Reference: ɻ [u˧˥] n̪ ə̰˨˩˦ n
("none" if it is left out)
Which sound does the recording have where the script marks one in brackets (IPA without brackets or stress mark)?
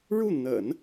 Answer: u˥˩